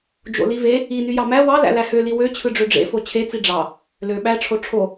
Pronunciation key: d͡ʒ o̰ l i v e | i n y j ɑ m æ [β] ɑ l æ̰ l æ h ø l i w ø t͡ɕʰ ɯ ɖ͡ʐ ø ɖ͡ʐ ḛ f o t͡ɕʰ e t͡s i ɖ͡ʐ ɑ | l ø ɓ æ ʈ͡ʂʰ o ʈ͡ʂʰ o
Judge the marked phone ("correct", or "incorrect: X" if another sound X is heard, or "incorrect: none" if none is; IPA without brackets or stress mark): incorrect: w